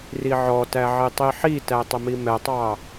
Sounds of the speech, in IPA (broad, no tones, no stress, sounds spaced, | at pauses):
r i ʕ ɔ t æ ʕ i tˤ i ħ i t æ tˤ ə m i m ɛ tˤ ɑ